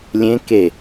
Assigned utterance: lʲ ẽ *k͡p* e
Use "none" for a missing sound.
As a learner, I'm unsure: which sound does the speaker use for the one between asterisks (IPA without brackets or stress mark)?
k